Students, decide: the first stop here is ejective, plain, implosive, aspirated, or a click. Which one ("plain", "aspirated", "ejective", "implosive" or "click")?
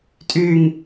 ejective